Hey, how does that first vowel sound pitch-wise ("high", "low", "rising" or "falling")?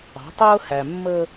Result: rising